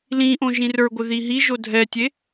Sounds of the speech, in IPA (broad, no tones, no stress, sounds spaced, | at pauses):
l ĩ ʔ õ ʒ ĩ r ə˞ ɡʷ ɪ ð i ɦ i ʒ o dʱ ɛ tʲ e